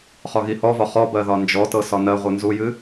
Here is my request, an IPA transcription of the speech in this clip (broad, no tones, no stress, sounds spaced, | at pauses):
χ ɒ ɣ i h ɔ v ɒ χ ɔ b ɜ ð ɒ n d͡ʒ ɔ t ɤ s ɒ n ɜ ʁʷ ɨ n z u j ɨ